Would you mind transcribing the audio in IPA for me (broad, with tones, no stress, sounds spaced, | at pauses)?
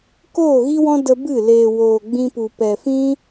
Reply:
k oː˦˨ ɣ i˦ w ɔ̃˦ d ə˧ b ɨ˦˨ l eː˨ w oː˨ ɡ͡b ĩ˧ p u˨ p ɛ˨ f ĩ˦